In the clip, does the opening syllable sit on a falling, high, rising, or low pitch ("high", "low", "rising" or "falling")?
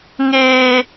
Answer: high